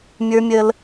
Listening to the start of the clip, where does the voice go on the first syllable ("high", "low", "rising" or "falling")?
high